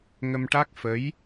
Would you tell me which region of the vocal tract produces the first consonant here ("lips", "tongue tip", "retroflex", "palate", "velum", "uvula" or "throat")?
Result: velum